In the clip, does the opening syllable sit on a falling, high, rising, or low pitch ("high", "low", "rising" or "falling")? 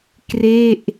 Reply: falling